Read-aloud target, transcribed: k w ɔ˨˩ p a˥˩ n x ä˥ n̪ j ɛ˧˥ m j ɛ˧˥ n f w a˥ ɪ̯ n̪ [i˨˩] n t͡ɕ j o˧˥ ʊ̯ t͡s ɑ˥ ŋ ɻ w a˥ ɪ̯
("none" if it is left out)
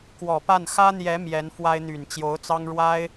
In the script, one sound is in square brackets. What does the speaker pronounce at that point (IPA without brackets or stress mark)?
y˨˩